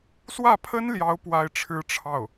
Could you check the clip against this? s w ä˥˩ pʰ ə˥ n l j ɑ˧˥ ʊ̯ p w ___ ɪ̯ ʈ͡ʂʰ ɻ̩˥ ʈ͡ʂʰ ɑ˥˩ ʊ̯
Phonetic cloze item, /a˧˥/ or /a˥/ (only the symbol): a˥